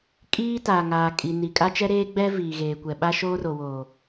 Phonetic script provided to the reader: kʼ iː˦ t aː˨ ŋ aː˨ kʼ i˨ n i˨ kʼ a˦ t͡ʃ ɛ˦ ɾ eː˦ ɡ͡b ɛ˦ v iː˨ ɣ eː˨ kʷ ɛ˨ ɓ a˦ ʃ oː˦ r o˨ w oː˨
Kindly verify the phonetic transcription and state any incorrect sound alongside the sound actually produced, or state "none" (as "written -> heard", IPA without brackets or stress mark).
none